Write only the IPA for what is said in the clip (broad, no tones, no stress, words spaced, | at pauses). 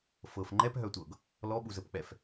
fɤf ŋ͡ǃɛpɦœtʷɤɡ | lɔɓuzəpk͡pɛf